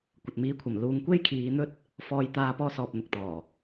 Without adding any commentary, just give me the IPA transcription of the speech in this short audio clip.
kʷ ɐ˨ t̚ m iː˨˧ kʷʰ ɐ˨˩ m l uː˨˧ ŋ kʷ e˥ j kʰ iː˨˧ n̪ ɵ˥ t̚ | f ɔː˧ j t̪ aː˧ p ɔː˧ s ɔː˨ p̚ n̪ ʊ˨ k̚ t̪ ɔː˨˩

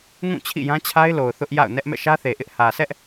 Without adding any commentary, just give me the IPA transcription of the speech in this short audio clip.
ŋ ũ˦˨ t͡ɕʰ ḭ˦˨ j ã˦ t͡ɕʰ a˦ ɪ̯ l o˨ ʊ̯ θ ʊ˦ ʔ j a̰˦˨ ʊ̯ n ɛ˦ ʔ m ɛ̰˦˨ ʃ ä˦ θ e˨ ʔ ɪ˦ ʔ h ä˨ s ɛ˦ ʔ

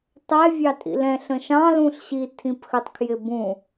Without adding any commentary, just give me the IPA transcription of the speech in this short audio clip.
tˤ ɛ vʲ ɑ tʼ ḭ l ɛ̃ ɬ ə̃ ʃ ɑ̃ l ũ ɬ ɕ i tʰ ĩ p x ə tˤ kʰ j ɪ b ũ

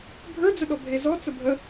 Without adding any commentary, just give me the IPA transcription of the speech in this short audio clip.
bʱ ə˞ d͡z ə ɗ ɔ bʱ e z ɔ t͡s ə bʱ ə

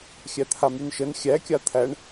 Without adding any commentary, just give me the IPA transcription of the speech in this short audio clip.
xʲ æ t̪ʰ a m y n ʃ ə n xʲ æ kʲ a t̪ʰ æ ɳ

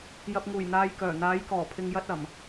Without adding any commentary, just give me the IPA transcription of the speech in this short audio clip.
j ɐ˧ p̚ ŋ uː˨˩ j n̪ aː˨ j k œː˨˩ n̪ aː˨˥ j k ɔː˨˩ pʰ ɪ˧ ŋ j ɐ˥ t̚ ɐ˨˩ m

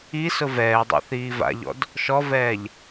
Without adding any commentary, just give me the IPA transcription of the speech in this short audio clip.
i s ʊ v ɛː dˤ ɛ̰ θ iː v a̰ ʎ ɔ̰ d | ʃ ɔ v ɛː ʎ

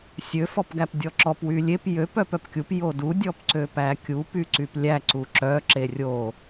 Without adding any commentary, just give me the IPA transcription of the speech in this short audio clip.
sʲ ø f ɔ p ɡ æ p dʲ ɔ ǁ ɔ p w y lʲ e p j ø p œ p œ p kʲ u p j o d u dʲ ɔ p ǀ ø p æ kʲ u p y ǀ y p lʲ æ ǀ u ǁ œ ǁ e rʲ o

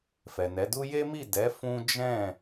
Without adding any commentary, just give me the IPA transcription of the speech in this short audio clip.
f ɛ˨ n ɛ˨˦ d u˦ j e˦ m i˦˨ d ɛ˨˦ f ũ˦ d͡ʒ ɛ̃˦˨

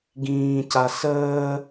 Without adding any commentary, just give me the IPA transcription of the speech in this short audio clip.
ɡ ĩː c a s əː

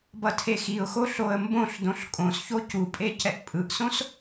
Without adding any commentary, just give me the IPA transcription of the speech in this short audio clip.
b ʌ tʰ e x i ʊ̯ x o ɬ o ə̯ m b õ ɬ d õ ɬ kʼ õ s ç o c u pʼ e c ɛ ʔ pʼ ɯ ʔ s õ s

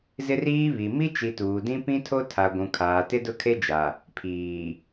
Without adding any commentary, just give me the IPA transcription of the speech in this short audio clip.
z ɪ˦ r iː˦ β i˨ m i˦ t͡ʃ i˨ t uː˨ d ĩ˦ p ĩ˦ tʰ o˦ tʰ a˨ ɡʷ ũ˨ kʰ aː˨ t ɪ˦ d ʊ˦ kʰ e˦ d͡ʒ a˨ | pʰ iː˨

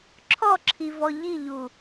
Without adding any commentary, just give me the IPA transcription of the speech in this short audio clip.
ǁʰ ɔ ǁʰ i v ɔ ʎ i ʎ u

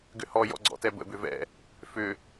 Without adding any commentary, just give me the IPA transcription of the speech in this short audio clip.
ɡ ʏ h ɔ j ɔ̰ ɡ͡ǀ ɔ̰ t ɛ b ə̰ b ʏ v ɛ̰ | f ʏ

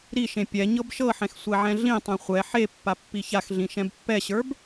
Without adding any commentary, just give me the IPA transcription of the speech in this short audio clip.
ɾ i ʃ ẽ pʲ ɛ ɲ ɤ b ʃ ɤ ħ ɛ̃ x sʷ ɛ ʕ ɛ̃ ɮ ĩ tˤ ẽ χʷ ɛ ħ e pː a pː i ç a x ɮ ĩ ʃ ɛ̃ b pː ɛ ɕ ə˞ b

